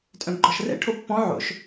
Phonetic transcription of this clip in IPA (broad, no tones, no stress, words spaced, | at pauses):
tʼœ̃bɡ͡ǃɔʃrɛ̰ ʈʰopːɔ̃ ʕo̰ʃ